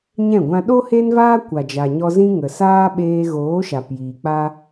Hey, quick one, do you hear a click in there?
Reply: no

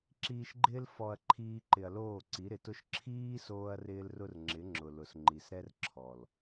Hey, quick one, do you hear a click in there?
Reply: yes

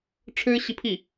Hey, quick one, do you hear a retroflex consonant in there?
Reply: yes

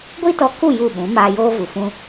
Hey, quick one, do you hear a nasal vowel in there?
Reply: yes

